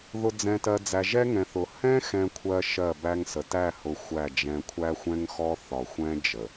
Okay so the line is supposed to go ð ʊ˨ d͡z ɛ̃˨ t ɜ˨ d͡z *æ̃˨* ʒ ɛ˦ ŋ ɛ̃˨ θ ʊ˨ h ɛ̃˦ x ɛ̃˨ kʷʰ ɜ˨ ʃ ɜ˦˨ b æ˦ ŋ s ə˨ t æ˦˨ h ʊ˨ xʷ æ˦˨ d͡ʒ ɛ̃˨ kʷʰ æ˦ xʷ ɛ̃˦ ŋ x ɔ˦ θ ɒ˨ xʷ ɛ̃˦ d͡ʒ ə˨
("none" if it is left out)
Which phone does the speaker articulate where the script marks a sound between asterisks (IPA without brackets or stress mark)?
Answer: æ˨